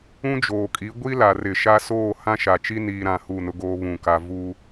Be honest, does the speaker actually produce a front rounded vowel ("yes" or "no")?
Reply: no